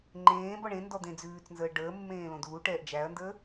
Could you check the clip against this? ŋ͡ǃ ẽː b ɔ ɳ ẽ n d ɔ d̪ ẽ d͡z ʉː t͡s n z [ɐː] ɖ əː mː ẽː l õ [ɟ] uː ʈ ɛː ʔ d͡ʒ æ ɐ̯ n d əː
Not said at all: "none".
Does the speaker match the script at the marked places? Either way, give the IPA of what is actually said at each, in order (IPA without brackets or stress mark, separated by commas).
əː, d